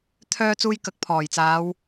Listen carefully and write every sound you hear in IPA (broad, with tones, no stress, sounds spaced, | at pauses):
t̪ʰ œː˧ t͡s uː˧ j k ɐ˨˥ k̚ pʰ ɔː˨˩ j t͡s aː˨˧ w